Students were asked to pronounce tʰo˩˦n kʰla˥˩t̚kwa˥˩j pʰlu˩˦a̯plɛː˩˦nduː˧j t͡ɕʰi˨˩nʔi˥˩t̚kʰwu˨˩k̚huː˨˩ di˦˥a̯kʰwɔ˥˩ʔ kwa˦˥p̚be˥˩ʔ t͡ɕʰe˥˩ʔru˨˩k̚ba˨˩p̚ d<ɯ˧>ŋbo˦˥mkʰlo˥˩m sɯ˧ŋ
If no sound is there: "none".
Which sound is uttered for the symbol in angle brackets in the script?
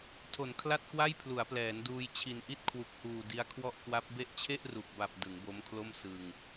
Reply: ɯ˩˦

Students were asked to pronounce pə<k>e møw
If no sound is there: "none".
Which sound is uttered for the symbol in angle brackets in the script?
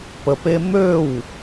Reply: p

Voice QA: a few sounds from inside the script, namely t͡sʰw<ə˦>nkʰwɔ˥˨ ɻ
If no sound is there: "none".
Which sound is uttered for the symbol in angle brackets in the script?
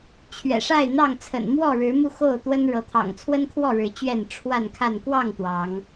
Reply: ə˦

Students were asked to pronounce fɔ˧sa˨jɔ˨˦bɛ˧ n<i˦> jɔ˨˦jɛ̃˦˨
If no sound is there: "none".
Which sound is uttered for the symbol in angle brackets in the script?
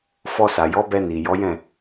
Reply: i˨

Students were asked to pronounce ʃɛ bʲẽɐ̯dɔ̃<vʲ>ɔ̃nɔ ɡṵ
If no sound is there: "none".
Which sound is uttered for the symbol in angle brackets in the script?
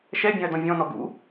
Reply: vʲ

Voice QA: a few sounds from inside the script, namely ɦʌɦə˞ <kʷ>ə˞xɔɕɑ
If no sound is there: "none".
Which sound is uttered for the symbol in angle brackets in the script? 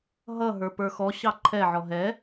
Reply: p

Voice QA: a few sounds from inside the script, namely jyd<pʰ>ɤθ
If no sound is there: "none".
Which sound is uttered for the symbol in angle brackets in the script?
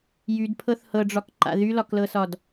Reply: pʰ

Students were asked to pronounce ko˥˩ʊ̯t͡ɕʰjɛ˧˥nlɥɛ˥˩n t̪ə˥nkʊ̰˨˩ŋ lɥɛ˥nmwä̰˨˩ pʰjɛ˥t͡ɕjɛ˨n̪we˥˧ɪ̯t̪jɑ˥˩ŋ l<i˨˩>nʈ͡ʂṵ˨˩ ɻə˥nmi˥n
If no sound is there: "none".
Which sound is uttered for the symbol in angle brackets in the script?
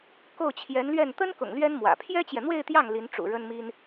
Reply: i˧˥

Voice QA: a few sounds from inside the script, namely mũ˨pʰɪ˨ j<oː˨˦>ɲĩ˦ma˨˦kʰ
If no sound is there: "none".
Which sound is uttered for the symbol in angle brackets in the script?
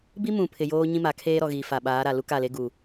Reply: oː˦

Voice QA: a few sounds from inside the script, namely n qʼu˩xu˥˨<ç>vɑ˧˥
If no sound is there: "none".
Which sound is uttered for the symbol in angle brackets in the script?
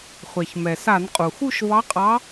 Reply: ʃ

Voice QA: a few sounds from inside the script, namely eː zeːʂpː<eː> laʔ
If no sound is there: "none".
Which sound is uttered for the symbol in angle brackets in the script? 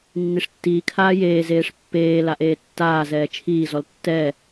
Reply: eː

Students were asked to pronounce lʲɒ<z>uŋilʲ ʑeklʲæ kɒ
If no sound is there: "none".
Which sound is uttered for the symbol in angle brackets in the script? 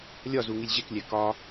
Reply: z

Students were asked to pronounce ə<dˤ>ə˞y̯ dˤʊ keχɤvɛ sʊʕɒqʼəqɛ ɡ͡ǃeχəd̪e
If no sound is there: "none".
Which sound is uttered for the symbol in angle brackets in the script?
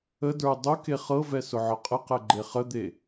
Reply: d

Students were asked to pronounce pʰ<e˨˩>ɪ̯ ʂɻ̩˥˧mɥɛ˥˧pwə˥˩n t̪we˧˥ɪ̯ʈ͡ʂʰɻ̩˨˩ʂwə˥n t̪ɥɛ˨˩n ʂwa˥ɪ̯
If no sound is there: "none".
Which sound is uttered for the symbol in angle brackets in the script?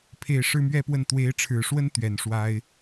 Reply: e˨˩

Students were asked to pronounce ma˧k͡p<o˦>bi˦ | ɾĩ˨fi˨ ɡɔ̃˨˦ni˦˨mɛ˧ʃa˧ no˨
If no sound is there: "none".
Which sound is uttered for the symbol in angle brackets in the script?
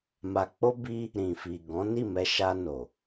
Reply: o˦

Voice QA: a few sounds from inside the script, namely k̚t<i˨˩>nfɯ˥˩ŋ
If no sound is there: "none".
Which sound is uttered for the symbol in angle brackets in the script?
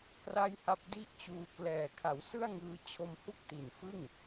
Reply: i˨˩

